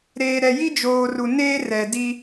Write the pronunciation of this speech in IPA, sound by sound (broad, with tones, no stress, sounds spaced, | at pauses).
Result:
ɾ eː˨ ɾ ɛ˨ j i˦ d͡ʒ oː˨ r u˨ n eː˦ r ɛ˨ d i˦